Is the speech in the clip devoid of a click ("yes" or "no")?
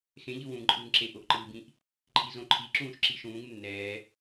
no